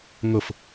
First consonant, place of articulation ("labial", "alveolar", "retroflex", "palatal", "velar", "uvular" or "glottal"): velar